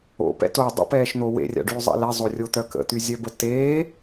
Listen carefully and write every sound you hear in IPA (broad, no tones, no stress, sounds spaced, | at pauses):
o̰ p ɛ̰ t o dˤ ə̰ p ɛː ʃ n̪ o w ḛ rʲ a̰ ɖ yː zˤ ɛ̰ l ɛ zˤ o rʲ o t̪ œ k ə̰ t̪ y zʲ œ b ə t e